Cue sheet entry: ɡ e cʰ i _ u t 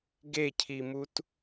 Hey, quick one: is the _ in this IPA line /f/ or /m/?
m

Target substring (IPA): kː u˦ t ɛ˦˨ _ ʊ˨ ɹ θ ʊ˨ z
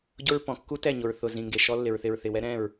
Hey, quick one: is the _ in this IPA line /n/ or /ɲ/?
ɲ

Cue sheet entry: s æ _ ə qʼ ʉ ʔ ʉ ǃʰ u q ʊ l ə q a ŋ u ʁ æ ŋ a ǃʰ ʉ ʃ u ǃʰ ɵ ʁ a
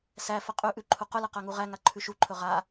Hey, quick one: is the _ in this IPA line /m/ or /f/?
f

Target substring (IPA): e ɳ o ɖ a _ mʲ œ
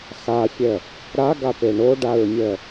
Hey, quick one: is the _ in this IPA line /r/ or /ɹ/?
ɹ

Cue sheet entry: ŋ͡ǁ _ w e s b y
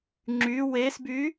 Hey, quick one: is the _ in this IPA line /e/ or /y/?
y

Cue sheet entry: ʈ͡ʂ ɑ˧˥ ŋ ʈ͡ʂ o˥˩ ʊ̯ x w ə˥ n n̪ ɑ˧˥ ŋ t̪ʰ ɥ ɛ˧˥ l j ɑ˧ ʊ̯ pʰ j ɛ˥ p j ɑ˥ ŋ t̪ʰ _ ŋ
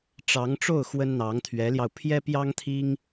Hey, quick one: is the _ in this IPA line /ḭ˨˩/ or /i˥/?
i˥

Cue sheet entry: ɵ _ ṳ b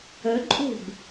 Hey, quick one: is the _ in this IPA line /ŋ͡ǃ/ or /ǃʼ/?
ǃʼ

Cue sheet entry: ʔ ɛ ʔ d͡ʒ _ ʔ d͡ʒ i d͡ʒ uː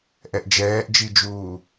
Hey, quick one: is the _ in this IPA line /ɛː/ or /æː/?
ɛː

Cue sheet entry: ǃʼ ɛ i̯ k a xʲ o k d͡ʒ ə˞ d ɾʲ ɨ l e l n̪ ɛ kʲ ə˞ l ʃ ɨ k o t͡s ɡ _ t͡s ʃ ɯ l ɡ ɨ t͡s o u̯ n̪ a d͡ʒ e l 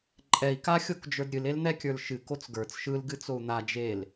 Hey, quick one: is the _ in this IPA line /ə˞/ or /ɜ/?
ə˞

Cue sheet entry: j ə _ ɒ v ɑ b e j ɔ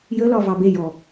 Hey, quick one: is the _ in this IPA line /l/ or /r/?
l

